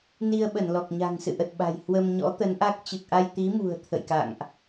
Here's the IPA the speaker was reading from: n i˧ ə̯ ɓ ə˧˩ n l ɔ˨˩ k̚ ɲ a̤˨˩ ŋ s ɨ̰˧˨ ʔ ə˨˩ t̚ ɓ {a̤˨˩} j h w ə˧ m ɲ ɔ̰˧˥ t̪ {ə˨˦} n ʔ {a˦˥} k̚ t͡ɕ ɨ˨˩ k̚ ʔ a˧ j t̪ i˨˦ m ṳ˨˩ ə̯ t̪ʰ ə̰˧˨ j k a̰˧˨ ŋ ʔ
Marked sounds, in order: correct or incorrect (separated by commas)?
correct, correct, correct